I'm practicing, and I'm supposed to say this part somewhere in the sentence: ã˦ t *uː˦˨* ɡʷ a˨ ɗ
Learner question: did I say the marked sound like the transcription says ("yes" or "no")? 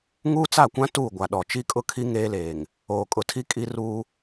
yes